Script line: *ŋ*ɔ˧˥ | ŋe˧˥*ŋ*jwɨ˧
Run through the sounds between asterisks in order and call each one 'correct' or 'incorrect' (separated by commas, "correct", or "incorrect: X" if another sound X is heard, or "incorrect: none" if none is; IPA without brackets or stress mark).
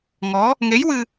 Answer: correct, incorrect: none